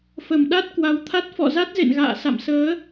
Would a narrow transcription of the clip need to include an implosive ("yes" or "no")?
yes